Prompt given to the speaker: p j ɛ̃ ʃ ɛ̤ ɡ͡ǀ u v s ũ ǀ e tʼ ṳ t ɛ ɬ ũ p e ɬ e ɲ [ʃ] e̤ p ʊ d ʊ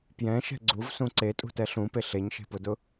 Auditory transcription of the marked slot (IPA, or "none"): ʃ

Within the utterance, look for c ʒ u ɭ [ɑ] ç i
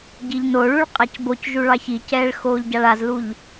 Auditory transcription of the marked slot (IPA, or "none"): ɑ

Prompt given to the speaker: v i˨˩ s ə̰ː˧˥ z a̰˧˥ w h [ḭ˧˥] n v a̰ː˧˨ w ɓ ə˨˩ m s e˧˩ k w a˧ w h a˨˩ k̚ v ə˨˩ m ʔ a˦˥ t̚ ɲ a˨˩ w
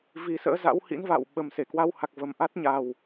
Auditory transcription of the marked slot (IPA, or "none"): ḭ˧˥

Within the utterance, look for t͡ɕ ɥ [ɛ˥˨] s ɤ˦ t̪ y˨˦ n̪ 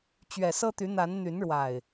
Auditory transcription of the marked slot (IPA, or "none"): ɛ˨˩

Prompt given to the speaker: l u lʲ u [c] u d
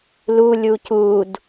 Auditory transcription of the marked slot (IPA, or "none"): c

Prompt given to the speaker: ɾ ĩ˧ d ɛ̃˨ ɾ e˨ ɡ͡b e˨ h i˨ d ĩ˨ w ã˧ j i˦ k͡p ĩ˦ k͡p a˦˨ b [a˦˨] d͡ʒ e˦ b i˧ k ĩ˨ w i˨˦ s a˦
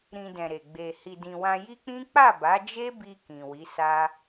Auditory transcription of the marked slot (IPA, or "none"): a˨˦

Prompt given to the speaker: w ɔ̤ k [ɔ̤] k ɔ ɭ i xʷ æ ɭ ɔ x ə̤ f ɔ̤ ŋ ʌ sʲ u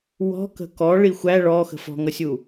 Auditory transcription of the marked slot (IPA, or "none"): ə̤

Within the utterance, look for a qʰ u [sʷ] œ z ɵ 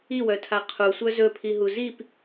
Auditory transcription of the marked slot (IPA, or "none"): sʷ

